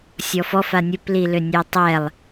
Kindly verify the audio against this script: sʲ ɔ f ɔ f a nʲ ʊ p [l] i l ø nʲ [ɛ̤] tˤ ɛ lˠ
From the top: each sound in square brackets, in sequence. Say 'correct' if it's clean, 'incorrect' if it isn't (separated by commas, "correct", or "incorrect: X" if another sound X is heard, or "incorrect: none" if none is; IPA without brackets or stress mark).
correct, incorrect: ɛ